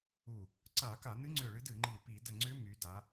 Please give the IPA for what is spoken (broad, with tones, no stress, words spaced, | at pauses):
u˧˩ | ǀa˧˩˧ka˧˩˧nɨ˧˥ŋ͡ǀʏ˧˩ ɭɨ˧˥dɨ˧˩˧ŋ͡ǃi˧˩ pi˧˩˧də˧˩ŋ͡ǀʏ˧˥ my˩˧da˩˧